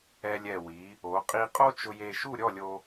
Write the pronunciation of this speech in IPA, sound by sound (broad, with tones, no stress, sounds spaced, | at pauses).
ɛ˧ lʲ ɛ˧˩ w i˩˧ | o˩˧ qʼ i˧ qʼ o˥ t͡ʃ ʊ˧ j e˧ ʃ u˥˧ ɾʲ ɔ˥˧ lʲ o˧